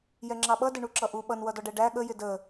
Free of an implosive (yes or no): no